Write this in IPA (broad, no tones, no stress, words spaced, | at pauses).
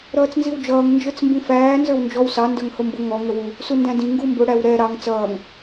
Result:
ɾʌːt͡snziwd͡ʒʌːŋ nd͡ʒə˞t͡smbĩfæː nzə˞wnd͡ʒɔw sɑ ndə˞ŋhʊmbʊ ŋɔ ŋəwu | sundæ̃dĩ ŋɡumbʊ ɽæwɾɛ ɾɑŋ t͡sʌːŋ